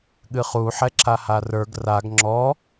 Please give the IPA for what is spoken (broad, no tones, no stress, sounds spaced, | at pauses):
ɠ ɨ χ u ħ ɛ ǁ a h a r ə˞ ɡ r a ɡ ŋ͡ǁ ɔ